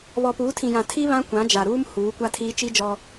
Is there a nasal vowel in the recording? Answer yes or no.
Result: yes